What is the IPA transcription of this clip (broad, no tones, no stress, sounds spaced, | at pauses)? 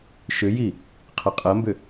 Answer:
ʃ ʏ j i | qʰ ɐ qʼ ɐ m b ʏ